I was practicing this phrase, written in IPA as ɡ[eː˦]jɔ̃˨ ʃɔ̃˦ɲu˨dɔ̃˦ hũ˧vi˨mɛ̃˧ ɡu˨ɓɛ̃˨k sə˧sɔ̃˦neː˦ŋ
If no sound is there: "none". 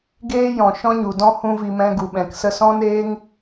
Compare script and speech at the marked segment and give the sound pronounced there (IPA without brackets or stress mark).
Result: eː˦